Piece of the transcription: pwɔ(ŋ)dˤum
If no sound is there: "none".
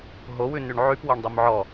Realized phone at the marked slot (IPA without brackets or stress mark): ɳ